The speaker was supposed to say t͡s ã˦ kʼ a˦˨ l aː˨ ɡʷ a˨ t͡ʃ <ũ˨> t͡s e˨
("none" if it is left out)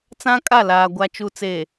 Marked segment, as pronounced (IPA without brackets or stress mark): u˨